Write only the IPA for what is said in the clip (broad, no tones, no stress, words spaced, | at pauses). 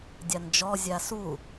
dʲand͡ʒɔ zʲasu